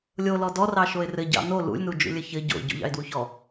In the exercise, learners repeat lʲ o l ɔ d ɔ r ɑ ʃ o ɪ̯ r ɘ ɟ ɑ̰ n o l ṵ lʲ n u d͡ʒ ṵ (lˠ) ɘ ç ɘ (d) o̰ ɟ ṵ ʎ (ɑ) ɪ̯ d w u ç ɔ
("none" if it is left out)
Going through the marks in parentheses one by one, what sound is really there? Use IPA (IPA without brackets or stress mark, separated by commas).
lʲ, ɟ, ɑ̰